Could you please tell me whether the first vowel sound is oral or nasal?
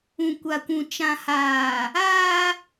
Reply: nasal